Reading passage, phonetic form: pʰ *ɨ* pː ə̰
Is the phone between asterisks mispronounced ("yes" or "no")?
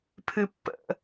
no